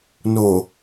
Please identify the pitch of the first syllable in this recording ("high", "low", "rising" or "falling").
low